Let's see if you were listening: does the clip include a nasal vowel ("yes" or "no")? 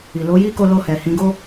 yes